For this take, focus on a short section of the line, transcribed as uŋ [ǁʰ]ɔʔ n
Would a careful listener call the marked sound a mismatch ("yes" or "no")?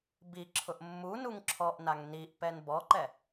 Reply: no